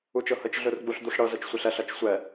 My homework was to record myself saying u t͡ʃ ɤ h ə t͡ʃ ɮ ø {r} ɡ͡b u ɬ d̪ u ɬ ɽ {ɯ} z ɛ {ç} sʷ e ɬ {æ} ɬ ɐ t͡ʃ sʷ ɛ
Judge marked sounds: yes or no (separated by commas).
yes, no, no, no